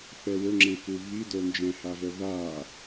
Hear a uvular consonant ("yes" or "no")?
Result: no